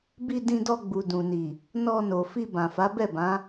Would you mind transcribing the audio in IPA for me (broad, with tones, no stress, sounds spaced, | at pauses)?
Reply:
b i˧ d ĩ˧ d ɔ˧ ɡ͡b u˨ d ũ˨ n i˨ | n ɔ˧ n o˨ f i˧ b ã˨ f a˨˦ b ɛ˦˨ b ã˨˦